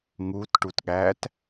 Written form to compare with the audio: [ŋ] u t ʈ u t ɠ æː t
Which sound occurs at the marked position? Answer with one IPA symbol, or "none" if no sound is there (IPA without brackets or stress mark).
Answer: ŋ